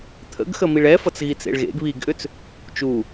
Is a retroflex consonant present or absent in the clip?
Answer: present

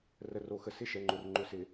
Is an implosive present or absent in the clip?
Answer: absent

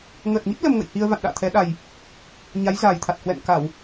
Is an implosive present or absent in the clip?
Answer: present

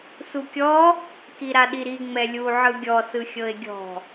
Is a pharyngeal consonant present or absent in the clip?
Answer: present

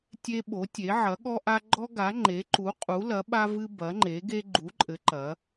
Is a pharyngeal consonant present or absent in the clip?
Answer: present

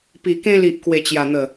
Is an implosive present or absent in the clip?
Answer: absent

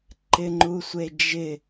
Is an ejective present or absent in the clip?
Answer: absent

